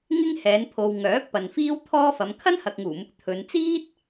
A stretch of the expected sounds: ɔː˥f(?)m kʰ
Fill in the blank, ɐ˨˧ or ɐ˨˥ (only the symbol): ɐ˨˧